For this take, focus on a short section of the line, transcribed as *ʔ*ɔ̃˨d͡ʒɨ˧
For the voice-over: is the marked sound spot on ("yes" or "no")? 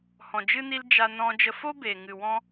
no